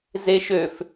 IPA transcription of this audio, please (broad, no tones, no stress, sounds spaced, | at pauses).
z e ʃ ø f